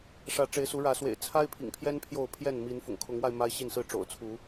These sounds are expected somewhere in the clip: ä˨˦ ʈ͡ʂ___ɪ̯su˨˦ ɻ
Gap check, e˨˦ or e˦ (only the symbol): e˨˦